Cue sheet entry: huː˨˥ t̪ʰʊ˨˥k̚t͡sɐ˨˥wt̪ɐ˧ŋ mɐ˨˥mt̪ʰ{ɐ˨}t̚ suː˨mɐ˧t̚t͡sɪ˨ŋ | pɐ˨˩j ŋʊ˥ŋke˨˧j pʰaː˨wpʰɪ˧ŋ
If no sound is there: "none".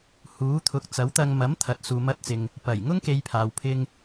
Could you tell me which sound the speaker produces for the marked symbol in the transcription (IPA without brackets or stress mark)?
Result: ɐ˨